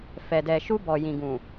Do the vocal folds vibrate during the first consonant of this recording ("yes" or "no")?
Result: no